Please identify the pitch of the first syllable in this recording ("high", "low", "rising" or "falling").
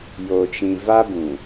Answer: low